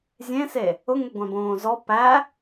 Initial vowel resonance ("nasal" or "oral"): nasal